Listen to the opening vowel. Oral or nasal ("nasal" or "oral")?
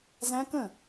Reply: nasal